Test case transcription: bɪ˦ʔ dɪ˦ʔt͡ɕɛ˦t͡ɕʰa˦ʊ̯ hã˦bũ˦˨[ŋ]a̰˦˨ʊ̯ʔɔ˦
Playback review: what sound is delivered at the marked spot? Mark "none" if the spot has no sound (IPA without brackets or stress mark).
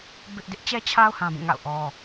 ŋ